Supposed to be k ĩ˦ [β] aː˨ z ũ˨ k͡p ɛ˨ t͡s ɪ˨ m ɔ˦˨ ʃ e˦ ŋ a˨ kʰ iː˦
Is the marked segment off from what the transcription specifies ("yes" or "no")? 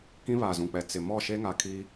no